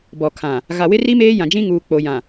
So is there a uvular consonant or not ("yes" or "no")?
no